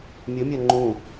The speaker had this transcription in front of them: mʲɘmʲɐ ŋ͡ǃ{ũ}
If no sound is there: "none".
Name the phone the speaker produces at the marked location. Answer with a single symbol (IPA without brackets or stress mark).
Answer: ũ